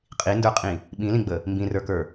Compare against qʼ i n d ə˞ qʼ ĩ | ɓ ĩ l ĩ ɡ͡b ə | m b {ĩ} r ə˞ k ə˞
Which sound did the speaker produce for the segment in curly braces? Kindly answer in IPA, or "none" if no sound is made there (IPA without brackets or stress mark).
ĩ